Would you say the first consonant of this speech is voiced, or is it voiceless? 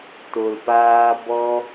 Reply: voiceless